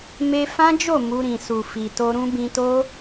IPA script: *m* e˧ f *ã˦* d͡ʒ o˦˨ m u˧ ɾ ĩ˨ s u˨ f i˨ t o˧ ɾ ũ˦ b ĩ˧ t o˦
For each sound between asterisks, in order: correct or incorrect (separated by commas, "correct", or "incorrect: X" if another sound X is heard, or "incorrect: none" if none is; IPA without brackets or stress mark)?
correct, correct